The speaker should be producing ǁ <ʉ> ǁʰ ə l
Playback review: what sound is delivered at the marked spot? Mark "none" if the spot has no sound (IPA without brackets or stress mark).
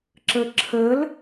ə